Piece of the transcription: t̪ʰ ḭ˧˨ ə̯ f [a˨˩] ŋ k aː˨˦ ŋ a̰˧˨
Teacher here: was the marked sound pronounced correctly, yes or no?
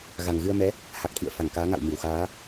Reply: no